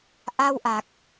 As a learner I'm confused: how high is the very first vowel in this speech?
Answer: low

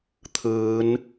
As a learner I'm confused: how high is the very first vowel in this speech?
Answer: high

